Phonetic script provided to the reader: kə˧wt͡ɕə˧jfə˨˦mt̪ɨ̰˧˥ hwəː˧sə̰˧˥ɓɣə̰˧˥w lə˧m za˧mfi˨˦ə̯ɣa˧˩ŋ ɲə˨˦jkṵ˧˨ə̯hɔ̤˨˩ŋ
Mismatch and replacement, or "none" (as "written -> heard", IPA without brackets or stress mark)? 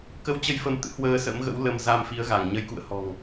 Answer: ɓ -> m